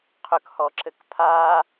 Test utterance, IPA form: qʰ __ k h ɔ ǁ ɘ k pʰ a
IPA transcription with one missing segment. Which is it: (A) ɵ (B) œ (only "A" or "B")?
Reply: A